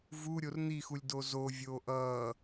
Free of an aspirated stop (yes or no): yes